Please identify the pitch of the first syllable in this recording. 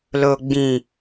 low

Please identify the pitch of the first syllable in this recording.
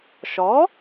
rising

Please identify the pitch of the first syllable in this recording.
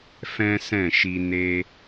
high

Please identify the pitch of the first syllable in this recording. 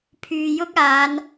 low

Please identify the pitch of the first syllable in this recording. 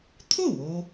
falling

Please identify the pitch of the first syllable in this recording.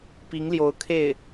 rising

